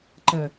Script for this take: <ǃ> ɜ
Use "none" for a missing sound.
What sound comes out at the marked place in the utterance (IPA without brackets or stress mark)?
ǃ